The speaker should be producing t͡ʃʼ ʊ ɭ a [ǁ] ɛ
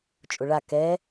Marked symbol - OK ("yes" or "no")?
no